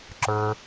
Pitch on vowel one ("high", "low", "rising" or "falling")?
low